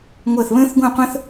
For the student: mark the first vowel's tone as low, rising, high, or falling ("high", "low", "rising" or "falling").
falling